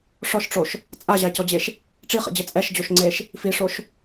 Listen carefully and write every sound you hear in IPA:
ʂ ɔ ʃ ʈ͡ʂ o ʃ | t͡sʼ a ʑ a c ɔ d͡ʑ e ʃ | ʈ͡ʂ i χ ḛ d͡ʑ ɘ t͡sʼ ɛ ʃ d͡ʑ o ʃ ŋ͡ǀ e ʃ | f i ʂ o ʃ

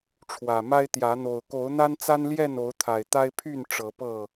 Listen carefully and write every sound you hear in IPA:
ʈ͡ʂʰ w ä˨˩ m a˦ ɪ̯ t̪ j ä˨˦ n̪ o˨˩ ʊ̯ k o˨˦ ʊ̯ n̪ a˦ n t͡s a˦ n l j ɛ˥˨ n o˨˦ ʊ̯ t̪ʰ a˨˩ ɪ̯ t̪ a˦ ɪ̯ pʰ y˥˨ n ʈ͡ʂ ɤ˨˦ p ɤ˥˨

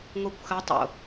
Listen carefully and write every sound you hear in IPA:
ŋ o kʷ x ɐ tˤ o̰

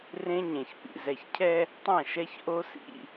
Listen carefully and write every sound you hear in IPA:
r ẽ˦ ɲ ẽ˨ ç p ḭ˨ z ɛ˨ ç cʰ ɛ˦ | tˤ ã˦˨ ʃ ɛ˦ ç ʔ o˦ s ḭ˦˨

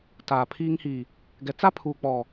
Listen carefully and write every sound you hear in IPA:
t aː˨ pʰ iː˦ ŋ h i˨ | ɡ ɛ˨ t͡s a˦ pʰ uː˨ k͡p ɔ˨

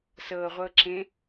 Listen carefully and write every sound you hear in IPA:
s ɤ ʁʷ ɤ ǁ ẽ

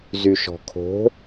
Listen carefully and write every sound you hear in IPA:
z y ʃ ɔ̤ kʰ o̤

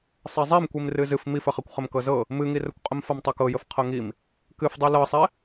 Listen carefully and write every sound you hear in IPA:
sˤ ɛ zˤ i m kʷ i m r ɨ z ɨ f m i f ə χ ɛ kʷ χ ə m k ɤ z ɤ | m ɨ ŋ i r ə kʷ qʼ ə m f ɤ m tˤ ɤ k ɤ j ə f qʰ ɤ ŋ i m | k ɨ f dˤ i l ɤ sˤ ɛ

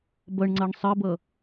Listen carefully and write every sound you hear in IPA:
b ʌ ɳ ŋ͡ǀ ʌ ɳ sˤ ə b ʌ

